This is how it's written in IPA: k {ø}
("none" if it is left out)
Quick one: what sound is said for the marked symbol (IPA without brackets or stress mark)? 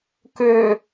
ø